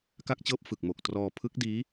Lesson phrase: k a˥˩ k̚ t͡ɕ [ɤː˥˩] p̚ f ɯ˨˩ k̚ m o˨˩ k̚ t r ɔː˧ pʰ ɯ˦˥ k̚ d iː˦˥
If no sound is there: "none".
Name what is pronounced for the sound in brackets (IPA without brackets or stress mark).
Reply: ɤː˥˩